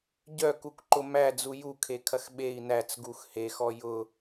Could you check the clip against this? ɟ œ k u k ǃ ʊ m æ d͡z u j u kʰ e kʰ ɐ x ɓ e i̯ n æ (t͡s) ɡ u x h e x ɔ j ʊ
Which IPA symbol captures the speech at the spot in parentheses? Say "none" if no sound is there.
t͡s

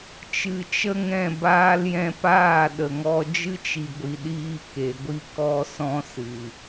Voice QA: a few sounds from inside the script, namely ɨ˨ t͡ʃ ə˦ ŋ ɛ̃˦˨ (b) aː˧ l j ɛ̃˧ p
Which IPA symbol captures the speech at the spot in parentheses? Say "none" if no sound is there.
b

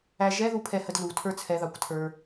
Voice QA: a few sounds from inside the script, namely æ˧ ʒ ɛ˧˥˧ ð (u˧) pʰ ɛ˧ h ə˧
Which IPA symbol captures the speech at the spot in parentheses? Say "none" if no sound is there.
u˧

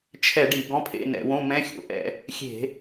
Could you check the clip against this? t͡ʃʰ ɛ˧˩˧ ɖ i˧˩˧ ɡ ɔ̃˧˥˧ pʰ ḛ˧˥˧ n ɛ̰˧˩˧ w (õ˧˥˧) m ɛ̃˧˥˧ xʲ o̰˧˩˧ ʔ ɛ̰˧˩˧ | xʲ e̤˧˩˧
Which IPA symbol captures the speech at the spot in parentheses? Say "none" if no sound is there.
õ˧˥˧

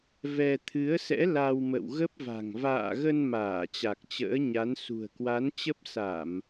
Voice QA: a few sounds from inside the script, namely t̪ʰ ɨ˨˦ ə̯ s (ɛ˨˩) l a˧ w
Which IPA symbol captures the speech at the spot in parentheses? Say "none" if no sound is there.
ɛ̰˧˥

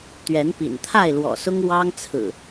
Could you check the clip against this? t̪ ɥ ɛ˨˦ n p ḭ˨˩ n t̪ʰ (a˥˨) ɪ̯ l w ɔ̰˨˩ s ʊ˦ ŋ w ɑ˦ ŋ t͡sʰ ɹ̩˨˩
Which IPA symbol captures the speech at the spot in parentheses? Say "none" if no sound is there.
a˥˨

